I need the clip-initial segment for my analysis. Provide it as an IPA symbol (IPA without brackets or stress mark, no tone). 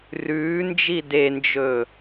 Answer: r